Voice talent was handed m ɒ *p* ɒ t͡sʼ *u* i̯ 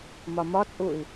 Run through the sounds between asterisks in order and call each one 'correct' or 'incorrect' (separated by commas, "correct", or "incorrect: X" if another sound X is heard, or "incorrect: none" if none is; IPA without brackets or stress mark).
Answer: incorrect: m, correct